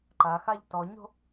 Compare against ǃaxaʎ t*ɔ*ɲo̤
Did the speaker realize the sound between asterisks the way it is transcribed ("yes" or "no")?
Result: yes